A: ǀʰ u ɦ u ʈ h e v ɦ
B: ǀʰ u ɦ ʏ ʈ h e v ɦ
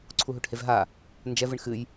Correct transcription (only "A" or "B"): A